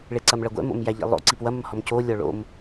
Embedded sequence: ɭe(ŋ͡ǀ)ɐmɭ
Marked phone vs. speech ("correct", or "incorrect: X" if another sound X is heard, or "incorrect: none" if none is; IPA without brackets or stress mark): incorrect: ǀ